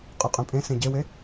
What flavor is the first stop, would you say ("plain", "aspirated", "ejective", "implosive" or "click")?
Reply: ejective